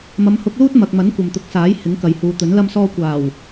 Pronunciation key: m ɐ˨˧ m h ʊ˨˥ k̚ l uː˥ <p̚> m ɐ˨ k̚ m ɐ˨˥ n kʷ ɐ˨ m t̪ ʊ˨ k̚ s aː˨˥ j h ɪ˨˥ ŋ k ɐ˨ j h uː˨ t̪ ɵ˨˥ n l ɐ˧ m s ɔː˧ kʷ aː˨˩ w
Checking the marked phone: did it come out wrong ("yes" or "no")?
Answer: yes